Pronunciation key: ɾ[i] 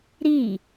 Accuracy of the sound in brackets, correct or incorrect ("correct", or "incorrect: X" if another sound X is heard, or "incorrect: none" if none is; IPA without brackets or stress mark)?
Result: correct